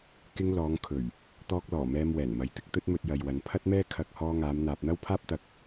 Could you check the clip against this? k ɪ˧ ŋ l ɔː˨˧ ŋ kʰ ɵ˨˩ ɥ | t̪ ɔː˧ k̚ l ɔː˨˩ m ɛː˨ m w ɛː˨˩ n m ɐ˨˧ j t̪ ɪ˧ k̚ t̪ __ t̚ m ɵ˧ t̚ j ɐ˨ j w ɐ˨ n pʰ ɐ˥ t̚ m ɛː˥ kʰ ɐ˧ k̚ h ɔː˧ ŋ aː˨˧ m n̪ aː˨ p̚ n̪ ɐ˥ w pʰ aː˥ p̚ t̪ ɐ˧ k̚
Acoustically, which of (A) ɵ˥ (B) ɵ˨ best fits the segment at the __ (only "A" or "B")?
A